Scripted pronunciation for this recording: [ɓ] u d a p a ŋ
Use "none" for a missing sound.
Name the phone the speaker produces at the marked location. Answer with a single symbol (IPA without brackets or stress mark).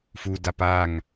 f